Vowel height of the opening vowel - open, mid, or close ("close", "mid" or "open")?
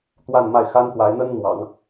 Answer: open